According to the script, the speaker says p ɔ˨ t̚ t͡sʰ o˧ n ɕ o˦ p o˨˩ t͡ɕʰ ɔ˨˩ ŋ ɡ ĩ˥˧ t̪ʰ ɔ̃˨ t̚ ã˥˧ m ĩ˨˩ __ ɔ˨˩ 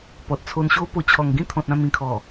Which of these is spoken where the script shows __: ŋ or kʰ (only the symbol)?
kʰ